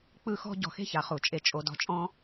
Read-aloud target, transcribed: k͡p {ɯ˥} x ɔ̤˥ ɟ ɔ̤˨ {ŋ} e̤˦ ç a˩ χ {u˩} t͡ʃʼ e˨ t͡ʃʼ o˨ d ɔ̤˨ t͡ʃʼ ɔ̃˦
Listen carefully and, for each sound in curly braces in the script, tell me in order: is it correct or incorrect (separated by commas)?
correct, incorrect, correct